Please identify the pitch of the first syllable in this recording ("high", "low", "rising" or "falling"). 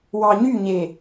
low